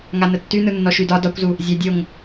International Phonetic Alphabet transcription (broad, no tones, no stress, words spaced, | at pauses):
ŋanətːynɯ nːɔʃydɒ dɒkʷzu | zʲædʲoŋ